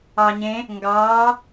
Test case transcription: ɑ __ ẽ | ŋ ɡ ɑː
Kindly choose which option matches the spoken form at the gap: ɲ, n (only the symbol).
ɲ